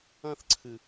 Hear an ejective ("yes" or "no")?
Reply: no